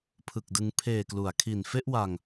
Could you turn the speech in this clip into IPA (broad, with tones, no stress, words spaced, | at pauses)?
pʰɯ˨˩k̚dɯ˧ŋ pʰeː˨˩klu˩˦a̯kʰi˨˩n fe˥˩ʔwa˧ŋ